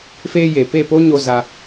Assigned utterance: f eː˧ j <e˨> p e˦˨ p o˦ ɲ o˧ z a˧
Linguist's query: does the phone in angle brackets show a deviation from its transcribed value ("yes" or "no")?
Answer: no